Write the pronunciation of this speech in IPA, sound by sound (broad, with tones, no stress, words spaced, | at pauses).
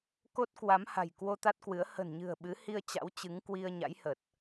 ko˦˥t̚kwa˨˦mha̤˨˩j kwo˧t̪a˦˥t̚kwɨ˨˦ə̯ hə̤˨˩nɲɨ̤˨˩ə̯ ɓɨ˨˦hi˧ə̯ t͡ɕa̰˧˥wt͡ɕɨ˨˦ŋ kwi˧ə̯ɲa̰˧˥jhə˨˩t̚